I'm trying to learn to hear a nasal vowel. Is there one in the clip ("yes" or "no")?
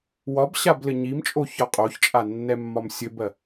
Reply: no